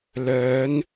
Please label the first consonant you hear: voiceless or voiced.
voiced